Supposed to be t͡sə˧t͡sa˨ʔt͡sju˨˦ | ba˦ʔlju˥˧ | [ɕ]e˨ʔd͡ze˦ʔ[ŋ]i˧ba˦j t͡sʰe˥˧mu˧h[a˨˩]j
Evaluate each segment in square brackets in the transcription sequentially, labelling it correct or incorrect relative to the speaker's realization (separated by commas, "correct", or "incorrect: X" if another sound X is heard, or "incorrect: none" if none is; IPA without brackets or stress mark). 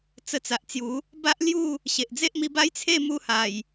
correct, incorrect: m, correct